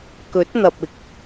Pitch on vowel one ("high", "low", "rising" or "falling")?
rising